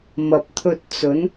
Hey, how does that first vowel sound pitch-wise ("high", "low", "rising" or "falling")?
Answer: low